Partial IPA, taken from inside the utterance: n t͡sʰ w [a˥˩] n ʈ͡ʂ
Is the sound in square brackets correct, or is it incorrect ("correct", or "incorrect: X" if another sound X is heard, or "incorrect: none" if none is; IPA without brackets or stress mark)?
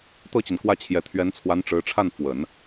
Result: incorrect: a˧˥